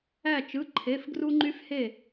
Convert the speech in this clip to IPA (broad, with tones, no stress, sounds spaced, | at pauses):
æ˧˩ t͡ʃ ɯ˩˧˩ ǃʰ e˩˧˩ f ɡ r u˧ ŋ͡ǃ y˧ f h e˧˩